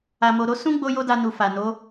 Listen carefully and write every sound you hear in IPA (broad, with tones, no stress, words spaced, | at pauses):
a˧mo˧ ɾo˦ sũ˦ ɡ͡bo˦jo˦da˧nu˨ fa˨no˨˦